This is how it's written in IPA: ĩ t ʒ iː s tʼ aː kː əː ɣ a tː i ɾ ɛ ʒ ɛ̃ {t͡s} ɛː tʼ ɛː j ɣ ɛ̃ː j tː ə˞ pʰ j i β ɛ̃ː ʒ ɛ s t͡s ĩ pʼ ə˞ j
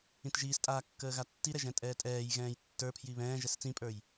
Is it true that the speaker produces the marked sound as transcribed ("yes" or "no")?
no